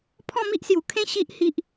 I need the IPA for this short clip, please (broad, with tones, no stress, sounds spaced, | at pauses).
pʰ ɔ̃˥˧ m i˦ ʔ s j u˨˩ kʰ ẽ˦ ɕ i˦ ʔ h i˦ ʔ